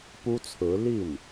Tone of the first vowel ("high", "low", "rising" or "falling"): high